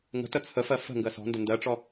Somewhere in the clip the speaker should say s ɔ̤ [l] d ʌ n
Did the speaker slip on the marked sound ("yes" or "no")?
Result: yes